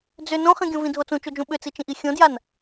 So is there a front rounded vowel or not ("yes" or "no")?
yes